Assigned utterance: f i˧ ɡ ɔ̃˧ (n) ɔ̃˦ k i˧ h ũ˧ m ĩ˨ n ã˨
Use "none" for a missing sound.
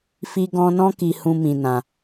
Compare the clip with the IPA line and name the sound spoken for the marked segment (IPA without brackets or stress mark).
n